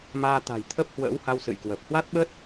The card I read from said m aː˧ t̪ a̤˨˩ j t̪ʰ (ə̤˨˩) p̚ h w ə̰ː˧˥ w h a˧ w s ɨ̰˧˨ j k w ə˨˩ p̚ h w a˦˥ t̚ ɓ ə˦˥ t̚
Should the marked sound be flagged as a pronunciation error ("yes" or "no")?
yes